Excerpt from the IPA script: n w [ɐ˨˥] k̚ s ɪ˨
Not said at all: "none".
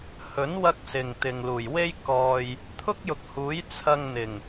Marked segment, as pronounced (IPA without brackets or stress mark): ɐ˧